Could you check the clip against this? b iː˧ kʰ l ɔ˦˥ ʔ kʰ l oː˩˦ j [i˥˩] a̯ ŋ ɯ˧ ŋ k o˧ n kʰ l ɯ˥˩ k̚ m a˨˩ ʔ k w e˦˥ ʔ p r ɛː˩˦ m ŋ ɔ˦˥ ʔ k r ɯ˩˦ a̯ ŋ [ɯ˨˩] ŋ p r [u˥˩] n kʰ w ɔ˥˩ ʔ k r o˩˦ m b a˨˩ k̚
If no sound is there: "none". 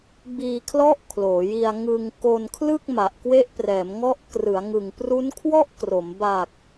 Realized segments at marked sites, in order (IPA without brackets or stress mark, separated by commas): i˧, ɯ˨˩, u˦˥